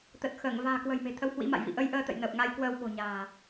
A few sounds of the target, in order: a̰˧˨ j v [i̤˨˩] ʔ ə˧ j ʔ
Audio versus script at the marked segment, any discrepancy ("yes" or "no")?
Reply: yes